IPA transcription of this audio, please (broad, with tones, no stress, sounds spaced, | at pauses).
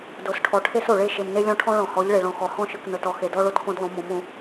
d o˨ s ʈʰ ɔ˨ ʈʰ e˦ s o˨ ɭ e˦˨ ʃ e˨ m n e˦ lʲ ɔ̃˦ ʈʰ ɔ̃˦ ɭ ɔ̃˨ h ɔ˨˦ ʎ ɭ e˨ ɭ ɔ̃˨ x ɔ˨ h ɔ̃˦ ʃ ɯ˨ k n ɤ˨ t ɔ˨ x e˨ d ɔ˦ ɭ o˦ t k õ˦ d lˠ õ˨˦ m ɔ̃˨˦ m õ˨˦